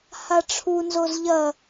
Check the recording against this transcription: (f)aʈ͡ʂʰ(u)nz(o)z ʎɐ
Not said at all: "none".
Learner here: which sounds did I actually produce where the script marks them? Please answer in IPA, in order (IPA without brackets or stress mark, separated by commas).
h, u, o